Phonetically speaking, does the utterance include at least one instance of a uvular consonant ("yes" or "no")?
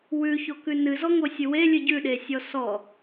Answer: no